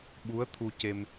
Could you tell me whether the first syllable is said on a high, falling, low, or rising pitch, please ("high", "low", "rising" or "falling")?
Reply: rising